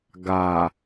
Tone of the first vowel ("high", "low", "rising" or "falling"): low